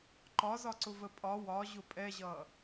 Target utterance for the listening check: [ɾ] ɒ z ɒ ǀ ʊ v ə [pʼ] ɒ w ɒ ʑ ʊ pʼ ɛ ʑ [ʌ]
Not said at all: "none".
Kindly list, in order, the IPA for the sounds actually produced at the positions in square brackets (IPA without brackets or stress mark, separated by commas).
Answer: ǃ, pʼ, ʌ